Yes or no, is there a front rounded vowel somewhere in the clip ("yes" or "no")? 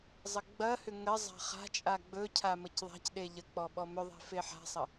yes